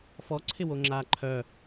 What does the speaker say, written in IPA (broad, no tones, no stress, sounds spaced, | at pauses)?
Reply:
f ɔ ǀʰ ɪ w o ŋ͡ǁ aː ǃʰ œ